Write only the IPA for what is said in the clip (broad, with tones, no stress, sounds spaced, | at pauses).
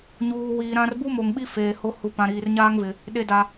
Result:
ɲ uː˨ w iː˨ ɾ ã˦ r b u˦ m o˨ ŋ ɓ i˦ f eː˨ h o˦ h u˨ p ã˨ ɾ iː˨ r ɲ aː˦ ŋ v ɪ˨ | ɗ e˨ d a˨